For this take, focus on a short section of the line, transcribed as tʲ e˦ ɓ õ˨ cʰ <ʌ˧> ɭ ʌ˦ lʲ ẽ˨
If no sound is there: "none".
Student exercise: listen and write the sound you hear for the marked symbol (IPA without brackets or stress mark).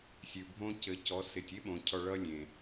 ɔ˧